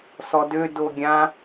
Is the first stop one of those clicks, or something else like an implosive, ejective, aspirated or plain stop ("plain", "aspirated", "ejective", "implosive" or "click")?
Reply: plain